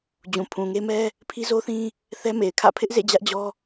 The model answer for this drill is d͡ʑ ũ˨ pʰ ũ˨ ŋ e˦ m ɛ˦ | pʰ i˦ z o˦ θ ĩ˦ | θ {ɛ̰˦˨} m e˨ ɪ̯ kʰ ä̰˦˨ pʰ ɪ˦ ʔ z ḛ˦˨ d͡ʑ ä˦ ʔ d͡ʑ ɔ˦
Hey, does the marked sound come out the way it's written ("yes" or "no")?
no